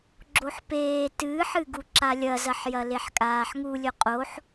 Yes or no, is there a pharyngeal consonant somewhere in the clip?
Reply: yes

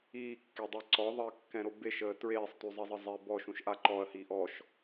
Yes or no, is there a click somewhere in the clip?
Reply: yes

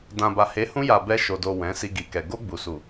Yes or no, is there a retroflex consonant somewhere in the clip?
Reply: no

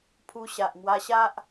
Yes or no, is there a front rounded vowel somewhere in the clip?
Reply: no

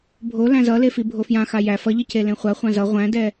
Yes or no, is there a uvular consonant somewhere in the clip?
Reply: yes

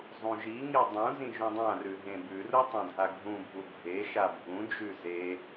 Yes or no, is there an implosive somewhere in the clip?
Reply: no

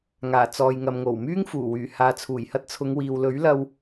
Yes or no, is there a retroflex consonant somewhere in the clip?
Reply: no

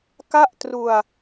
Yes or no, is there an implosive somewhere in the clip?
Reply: no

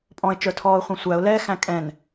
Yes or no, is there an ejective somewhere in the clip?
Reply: yes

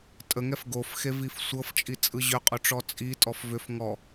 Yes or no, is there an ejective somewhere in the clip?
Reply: yes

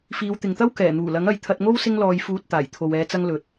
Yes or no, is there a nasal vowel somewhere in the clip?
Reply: no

